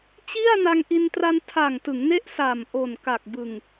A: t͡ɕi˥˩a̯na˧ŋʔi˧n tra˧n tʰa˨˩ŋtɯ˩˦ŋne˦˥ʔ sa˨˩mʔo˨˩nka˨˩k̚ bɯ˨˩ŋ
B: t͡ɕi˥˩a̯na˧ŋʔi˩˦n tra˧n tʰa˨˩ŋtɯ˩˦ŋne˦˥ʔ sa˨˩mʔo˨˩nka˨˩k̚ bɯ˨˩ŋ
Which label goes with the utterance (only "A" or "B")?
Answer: A